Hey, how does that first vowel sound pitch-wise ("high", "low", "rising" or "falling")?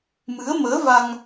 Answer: rising